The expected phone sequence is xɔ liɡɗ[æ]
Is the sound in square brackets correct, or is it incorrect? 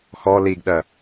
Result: incorrect